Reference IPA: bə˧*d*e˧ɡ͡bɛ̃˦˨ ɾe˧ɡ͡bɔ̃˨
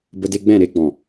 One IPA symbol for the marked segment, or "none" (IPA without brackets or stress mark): d